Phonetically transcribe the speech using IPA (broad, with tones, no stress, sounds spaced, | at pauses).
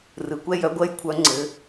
r ɯ˩˥ kʷ ɛ˦˥ j œ˩˥ ɡʷ ɜ˥˨ j kʷʰ œ˦˥ ŋ͡ǀ ɘ˩˥